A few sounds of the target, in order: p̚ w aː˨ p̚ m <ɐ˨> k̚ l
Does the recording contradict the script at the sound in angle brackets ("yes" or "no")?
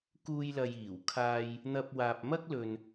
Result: yes